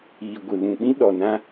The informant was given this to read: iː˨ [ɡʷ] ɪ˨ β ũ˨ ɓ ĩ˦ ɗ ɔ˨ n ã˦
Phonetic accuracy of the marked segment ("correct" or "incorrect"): correct